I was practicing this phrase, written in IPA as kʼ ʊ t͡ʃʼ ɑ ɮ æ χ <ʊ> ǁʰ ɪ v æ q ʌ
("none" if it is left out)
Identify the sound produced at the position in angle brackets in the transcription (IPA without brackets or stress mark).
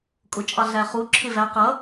u